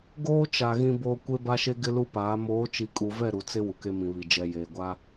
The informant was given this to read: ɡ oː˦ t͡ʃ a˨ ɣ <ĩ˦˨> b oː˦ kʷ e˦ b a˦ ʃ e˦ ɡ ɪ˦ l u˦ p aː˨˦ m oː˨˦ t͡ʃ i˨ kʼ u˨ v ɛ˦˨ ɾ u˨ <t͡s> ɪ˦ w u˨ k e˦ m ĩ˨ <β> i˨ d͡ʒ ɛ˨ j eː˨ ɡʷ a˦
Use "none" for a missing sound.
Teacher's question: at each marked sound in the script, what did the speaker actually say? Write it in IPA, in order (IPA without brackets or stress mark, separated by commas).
ĩ˦, t͡s, β